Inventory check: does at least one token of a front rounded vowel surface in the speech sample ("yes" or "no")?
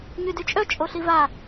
yes